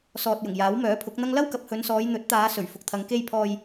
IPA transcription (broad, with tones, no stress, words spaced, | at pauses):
sɔː˨t̚jʊ˨˩ŋ jaː˨˥wmœː˨˥pʰʊ˨˥k̚n̪ɐ˥ŋ lɐ˥wkɐ˨p̚hɵ˨˧nsɔː˨˧j n̪ɵ˨˥t̚t̪aː˨˧ sɵ˨˩ɥfʊ˨k̚t̪ʰɐ˨˧ŋ ke˧jpʰɔː˨j